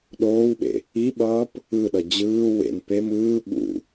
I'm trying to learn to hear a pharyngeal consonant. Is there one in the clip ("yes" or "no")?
no